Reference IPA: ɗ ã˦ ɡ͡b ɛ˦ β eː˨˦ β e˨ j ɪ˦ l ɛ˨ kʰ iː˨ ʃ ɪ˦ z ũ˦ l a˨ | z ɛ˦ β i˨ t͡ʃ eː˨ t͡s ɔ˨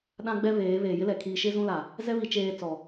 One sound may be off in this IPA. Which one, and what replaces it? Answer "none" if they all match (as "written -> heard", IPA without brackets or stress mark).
e˨ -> eː˨